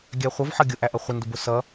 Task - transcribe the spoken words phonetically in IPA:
ɡʲ æ χʷ ʌ v ħ ʌ ɡʲ ʊ ʔ æ ʔ ʌ χʷ ɪ n d ʊ b ʊ s ʌ

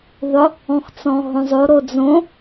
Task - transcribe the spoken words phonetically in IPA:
ðˤ ʊ | ɔ̃ x t͡s ɔ̃ ɦ õ zˤ o ɾ o d͡z õ

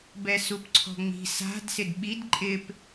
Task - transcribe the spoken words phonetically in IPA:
b ɛ s u p ǀʰ ɔ̤ ŋ͡m i̤ s a̤ d s ɪ d ɓ i d ǃʼ ɪ p

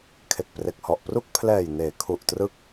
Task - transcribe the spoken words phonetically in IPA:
kʰ e˨˩ k̚ p r e˨˩ k̚ h ɔ˨˩ ʔ p r u˥˩ k̚ pʰ l ɛː˨˩ j n eː˩˦ kʰ u˨˩ ʔ t r ɯ˦˥ k̚

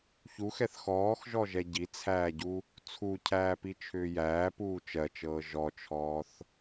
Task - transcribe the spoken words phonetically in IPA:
ç u x ɛ θ x ɔː x ʒ ɔ ʒ ɛ ɟ i t͡sʰ æː ɟ u | t͡sʰ u cʰ æː p i t͡ʃʰ ʏː j æː p uː t͡ʃ ɜ t͡ʃ ɤː ʒ ɔ t͡ʃʰ ɔː θ

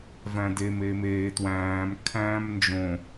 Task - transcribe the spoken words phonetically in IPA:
v æ̃ d e m e m eː t w æ̃ː m kʰ æ̃ː m n d͡ʒ õ

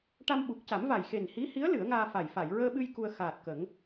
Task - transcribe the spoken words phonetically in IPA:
ʈ a˧ m ɓ u˨˩ k̚ c a˨˩˦ m v a˨˩ j x e˨˩ n h i˧˥ h i˧˥ ə̯ l ɨ˨˩˦ ə̯ ŋ aː˧ f a˨˩ j f a˨˩˨ j ɹ əː˧ ɓ ɨ˧ j k u˧ ə̯ x aː˨˩ t̚ k ə˨˩˦ ŋ

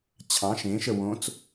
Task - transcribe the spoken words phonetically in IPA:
t͡ɕʰ ɑ̃ ʃ ẽ ʃ ə w õ t͡s

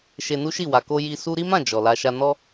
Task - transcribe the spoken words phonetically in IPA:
ʃ e˧ n u˦ ʃ i˦˨ w a˨ k o˧ j i˧ s u˦ ɾ i˦ m ã˦˨ d͡ʒ ɔ˨ l a˧ ʃ a˧ n ɔ˦

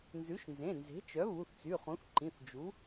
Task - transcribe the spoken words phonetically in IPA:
n z ʉ˩˥ ʃ n z ẽ˩˧˩ n z e̤˩˥ t͡ʃ œ˩˥ β u˩˧˩ θ t͡s y˩˧˩ χ ũ˩˥ θ ǃ ĩ˩˧˩ θ d͡ʒ u˩˥

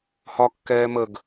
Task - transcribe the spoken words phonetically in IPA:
h ɒ kː ɛː m ə ɡ

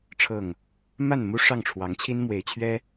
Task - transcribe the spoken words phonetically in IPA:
ʈ͡ʂʰ ɤ˥˨ ŋ | m a˥˨ n m u˦ ʂ ɑ˥˨ ŋ ʈ͡ʂʰ w ɑ˨˦ ŋ t͡ɕʰ i˦ n m w e˨˦ ɪ̯ t͡ɕʰ ɥ ɛ˦

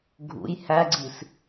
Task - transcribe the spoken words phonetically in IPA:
ɡʱ ṵ j h æ ɡ͡ǀ i s

